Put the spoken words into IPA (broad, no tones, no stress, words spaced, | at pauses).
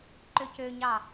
ǃøcøɲɑ